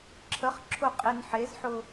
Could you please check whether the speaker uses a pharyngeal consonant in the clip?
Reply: yes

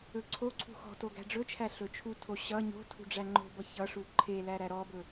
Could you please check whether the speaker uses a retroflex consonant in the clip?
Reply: yes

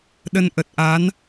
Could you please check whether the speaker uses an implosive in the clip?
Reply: yes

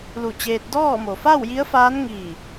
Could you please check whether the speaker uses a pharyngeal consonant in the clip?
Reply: no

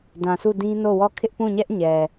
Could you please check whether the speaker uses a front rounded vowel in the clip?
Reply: no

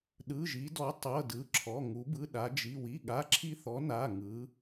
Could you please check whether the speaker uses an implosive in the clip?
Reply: yes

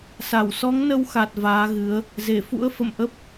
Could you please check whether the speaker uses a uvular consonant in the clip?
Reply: no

